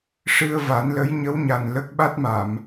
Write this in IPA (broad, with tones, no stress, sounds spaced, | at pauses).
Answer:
ʂ ɨ˧ ə̯ v a˨˩˦ n l ə˧˥ j ɲ ə˧˥ w ɲ a˨˩ n l ə˦˥ k̚ ɓ a˦˥ t̚ m a˨˩˨ m